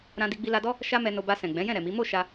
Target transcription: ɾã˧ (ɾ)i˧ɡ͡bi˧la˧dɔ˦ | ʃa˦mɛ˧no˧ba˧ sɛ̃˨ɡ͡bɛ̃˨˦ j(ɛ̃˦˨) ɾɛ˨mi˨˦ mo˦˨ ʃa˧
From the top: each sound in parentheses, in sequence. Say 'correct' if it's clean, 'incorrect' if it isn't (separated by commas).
incorrect, correct